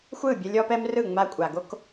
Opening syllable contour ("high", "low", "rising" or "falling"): falling